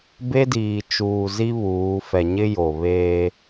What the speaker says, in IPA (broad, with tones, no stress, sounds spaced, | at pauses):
b e˦ d iː˨ t͡ʃ uː˨ z i˦ β uː˨˦ f ɛ˨ ɲ ɪ˦ j o˨ β eː˦